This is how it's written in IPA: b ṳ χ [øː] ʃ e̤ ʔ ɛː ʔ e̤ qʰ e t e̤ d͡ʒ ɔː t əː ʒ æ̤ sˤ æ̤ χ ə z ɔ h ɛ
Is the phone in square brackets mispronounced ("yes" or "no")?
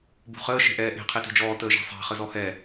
yes